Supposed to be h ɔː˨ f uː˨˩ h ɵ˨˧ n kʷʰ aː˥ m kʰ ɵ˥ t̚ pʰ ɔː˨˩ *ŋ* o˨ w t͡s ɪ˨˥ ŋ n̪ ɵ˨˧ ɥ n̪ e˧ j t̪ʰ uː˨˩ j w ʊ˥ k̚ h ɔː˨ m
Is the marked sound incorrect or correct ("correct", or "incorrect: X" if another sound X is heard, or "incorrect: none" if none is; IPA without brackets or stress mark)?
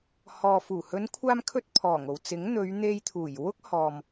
correct